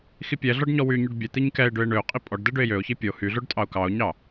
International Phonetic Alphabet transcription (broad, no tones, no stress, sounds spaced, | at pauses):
x i pʲ ɛ ɮ ɔ ɖ ɲ ɔ w y ɲ y ɖ bʲ ɛ t̪ i ɲ k ɛ ɪ̯ ɖ ø ɪ̯ ɳ ø ʊ̯ qʼ i pʼ ɔ ɖ d ɛ ɖ ø ɪ̯ j ø ʊ̯ ç i pʲ o h y ɮ o ɖ tʼ ɑ ʊ̯ k ɑ ʊ̯ ɲ ɑ